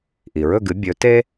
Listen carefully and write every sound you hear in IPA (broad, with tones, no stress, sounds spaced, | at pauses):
ʔ i˩ ɹ ɵ˥˩ ɡ ɨ˩˥ bʲ ɵ˩˥ t e˥